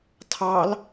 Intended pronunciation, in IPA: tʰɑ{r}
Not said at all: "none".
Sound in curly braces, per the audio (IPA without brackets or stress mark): l